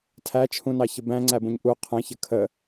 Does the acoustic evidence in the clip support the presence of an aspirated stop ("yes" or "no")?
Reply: yes